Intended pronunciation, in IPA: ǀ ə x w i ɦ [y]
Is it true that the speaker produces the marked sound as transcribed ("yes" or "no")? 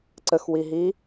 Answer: no